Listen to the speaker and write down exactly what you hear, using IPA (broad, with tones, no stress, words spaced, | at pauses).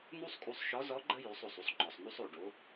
nu˥sˤkʼu˧sˤʃɔ˧˥zɔ˧˥ ɡ͡ǃə˥ jʉ˩˧sˤo˩sˤu˧sˤ ŋ͡ǃɔ˩sˤnu˧sˤ o˩ɖo˩˧